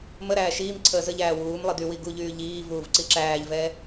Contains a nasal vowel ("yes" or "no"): no